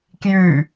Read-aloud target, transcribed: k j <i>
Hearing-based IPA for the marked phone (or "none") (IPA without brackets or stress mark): y